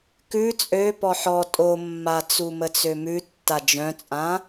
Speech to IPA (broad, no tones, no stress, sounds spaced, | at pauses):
k ʉ t͡sʼ ø p ɔ ħ ɔ tʼ o mː a t͡s u m ə t͡s ø m ʉ tː a d͡ʒ œ̃ t͡sʼ ã